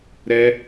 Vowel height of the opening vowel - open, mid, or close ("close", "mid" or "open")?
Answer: mid